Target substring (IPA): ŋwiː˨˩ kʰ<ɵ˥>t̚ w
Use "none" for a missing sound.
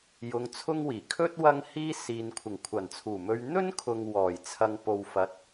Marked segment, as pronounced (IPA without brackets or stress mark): ɵ˥